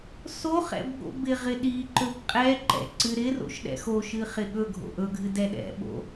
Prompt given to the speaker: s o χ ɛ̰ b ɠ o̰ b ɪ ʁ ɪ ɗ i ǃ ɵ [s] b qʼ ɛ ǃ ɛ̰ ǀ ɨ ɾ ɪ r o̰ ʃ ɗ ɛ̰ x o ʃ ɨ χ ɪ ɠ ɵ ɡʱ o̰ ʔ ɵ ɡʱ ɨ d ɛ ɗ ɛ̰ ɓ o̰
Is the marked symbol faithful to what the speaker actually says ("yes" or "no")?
no